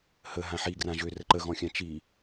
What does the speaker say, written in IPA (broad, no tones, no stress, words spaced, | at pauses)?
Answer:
hə ɦãħiɡrã ʒørə ǃəɣɔ̃xʲã t͡ʃi